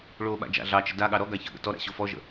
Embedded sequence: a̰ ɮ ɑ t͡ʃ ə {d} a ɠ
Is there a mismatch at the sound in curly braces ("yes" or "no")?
no